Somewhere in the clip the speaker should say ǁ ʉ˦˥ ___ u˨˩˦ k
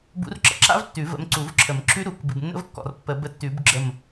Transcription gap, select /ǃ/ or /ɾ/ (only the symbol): ɾ